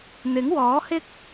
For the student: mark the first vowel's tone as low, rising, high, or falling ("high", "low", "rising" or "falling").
rising